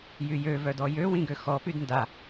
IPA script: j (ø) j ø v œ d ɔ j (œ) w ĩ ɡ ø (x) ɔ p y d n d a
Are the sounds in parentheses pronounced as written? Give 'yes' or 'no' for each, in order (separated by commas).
no, no, yes